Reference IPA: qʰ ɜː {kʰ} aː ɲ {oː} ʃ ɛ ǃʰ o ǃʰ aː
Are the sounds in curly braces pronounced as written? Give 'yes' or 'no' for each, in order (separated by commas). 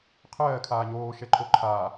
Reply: yes, yes